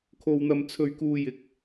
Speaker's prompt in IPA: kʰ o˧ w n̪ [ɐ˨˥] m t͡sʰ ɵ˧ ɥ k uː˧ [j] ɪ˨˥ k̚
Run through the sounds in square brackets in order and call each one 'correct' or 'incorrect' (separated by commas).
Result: incorrect, correct